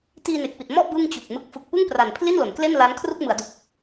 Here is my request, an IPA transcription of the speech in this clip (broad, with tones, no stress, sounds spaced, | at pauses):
t iː˧ n e˨˩ k̚ p i˨˩ t̚ m ɔ˥˩ ʔ b ɯ˥˩ ŋ t͡ɕ u˨˩ k̚ m ɯ˦˥ k̚ f ɯ˨˩ k̚ p ɯ˥˩ ŋ p r a˨˩ n pʰ l i˥˩ n l o˩˦ n k l e˥˩ n l a˦˥ n kʰ r u˥˩ k̚ m ɯ˩˦ a̯ d u˨˩ k̚